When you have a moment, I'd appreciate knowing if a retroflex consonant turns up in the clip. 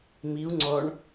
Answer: yes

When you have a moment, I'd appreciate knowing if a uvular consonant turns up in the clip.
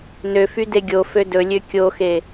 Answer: no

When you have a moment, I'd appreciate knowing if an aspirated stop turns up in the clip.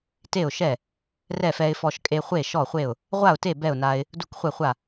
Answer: no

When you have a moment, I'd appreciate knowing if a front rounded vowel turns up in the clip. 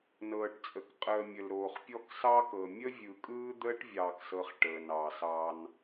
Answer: no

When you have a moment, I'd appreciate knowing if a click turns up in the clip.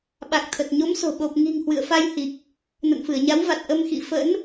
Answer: no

